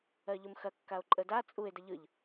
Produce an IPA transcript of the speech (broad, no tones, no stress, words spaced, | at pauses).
ɜʎʊmxɐ kːao̯ǃʼəda t͡sʼue̯ dəʎɯʎ